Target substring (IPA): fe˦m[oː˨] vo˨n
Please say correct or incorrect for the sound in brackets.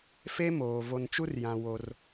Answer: correct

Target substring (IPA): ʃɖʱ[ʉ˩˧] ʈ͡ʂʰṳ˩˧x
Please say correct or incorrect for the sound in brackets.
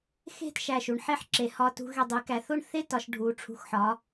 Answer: incorrect: u˩˧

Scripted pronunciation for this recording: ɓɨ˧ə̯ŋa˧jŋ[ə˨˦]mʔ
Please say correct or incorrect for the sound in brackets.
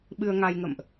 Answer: incorrect: ə̰˧˨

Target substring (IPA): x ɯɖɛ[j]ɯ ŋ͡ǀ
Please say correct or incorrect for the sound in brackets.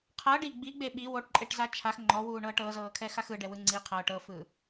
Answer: incorrect: w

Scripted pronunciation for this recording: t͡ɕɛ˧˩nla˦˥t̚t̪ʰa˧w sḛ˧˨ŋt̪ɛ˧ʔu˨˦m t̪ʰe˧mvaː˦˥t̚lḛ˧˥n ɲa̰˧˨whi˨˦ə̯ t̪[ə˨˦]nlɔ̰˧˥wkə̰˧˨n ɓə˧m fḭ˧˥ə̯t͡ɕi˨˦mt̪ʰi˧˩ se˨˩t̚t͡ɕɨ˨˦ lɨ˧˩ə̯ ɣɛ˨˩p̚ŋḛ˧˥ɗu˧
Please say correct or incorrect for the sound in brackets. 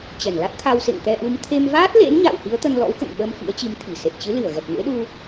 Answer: incorrect: ə˧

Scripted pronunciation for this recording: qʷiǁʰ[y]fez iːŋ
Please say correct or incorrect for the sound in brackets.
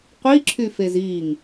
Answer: correct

